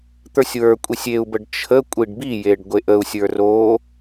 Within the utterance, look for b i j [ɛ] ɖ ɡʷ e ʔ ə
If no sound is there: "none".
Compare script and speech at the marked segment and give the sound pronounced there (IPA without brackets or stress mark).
e